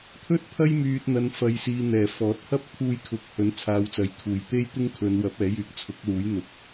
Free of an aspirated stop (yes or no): no